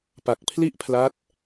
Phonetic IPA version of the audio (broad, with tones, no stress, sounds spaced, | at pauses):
p a˨˩ k̚ pʰ l i˥˩ ʔ pʰ l a˦˥ t̚